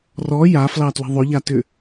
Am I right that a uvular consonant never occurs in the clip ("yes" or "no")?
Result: yes